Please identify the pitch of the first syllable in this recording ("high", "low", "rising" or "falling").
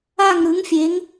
falling